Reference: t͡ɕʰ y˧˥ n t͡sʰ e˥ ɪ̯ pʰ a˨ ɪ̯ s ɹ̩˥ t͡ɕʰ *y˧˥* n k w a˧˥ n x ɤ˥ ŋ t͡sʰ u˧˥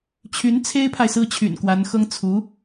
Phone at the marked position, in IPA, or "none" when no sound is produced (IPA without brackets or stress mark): y̰˨˩